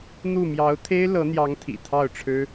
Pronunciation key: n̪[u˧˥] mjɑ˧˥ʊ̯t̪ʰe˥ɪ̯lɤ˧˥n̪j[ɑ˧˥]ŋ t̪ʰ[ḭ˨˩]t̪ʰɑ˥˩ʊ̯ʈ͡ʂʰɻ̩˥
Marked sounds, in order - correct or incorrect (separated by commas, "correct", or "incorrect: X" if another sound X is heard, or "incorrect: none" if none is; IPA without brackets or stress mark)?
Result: incorrect: u˥˩, correct, correct